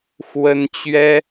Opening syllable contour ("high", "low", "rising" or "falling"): high